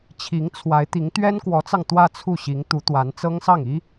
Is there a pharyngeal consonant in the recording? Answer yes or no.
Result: no